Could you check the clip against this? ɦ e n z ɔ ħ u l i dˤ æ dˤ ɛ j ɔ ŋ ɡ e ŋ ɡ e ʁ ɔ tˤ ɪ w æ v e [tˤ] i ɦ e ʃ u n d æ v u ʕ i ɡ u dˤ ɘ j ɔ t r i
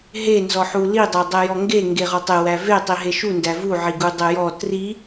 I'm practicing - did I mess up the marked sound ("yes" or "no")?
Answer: no